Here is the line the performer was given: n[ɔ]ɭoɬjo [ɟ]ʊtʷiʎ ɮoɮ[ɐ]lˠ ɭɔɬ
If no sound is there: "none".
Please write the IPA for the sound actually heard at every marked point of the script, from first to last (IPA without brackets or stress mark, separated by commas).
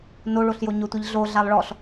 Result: o, ɲ, a